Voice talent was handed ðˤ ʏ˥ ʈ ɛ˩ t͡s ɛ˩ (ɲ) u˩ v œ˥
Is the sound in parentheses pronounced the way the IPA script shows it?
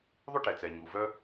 yes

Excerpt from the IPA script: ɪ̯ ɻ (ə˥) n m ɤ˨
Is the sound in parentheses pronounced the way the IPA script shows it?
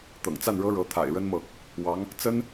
yes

